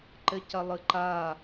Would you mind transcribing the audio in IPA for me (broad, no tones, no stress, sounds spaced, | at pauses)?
ǃ ɘ c ɐ lˠ ɨ ǃ a